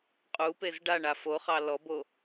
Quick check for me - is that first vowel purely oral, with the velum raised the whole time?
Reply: yes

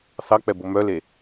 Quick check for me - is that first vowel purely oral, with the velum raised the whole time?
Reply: yes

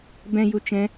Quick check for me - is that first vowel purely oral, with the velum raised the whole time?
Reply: no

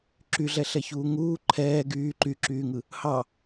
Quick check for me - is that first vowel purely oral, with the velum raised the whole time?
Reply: yes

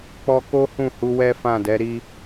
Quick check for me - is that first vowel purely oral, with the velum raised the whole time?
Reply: yes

